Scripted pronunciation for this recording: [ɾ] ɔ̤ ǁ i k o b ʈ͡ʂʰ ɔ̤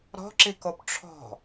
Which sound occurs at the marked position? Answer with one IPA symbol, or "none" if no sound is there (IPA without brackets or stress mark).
ɾ